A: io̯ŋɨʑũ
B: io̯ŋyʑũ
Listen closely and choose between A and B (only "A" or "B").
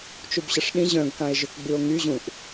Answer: B